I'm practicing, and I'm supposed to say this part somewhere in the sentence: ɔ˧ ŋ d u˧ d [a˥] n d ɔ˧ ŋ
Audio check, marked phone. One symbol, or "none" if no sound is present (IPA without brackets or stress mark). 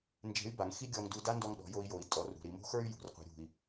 a˥